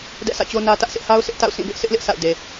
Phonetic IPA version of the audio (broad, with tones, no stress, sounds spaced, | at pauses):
d ɛ̰˦˨ sʰ ä̰˦˨ t͡ɕ o˦ n ä˦ t ä˦ ʔ sʰ ɪ˦ ʔ h a˦ ʊ̯ s ɪ˦ ʔ t a̰˦˨ ʊ̯ sʰ ĩ˦˨ b ɪ˦ ʔ s ɪ˦ ʔ l ɪ˦ ʔ s a̰˦˨ ʊ̯ d e˨